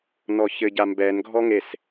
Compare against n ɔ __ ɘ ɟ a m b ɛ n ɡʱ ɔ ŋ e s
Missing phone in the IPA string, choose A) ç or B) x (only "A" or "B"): A